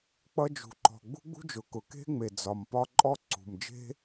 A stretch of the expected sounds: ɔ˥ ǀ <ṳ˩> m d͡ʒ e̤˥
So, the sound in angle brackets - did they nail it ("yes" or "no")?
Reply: yes